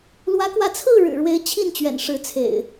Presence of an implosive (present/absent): absent